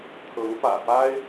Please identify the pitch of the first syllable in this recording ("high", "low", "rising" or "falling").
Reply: rising